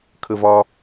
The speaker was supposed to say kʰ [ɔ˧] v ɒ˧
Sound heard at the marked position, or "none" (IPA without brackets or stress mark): ə˧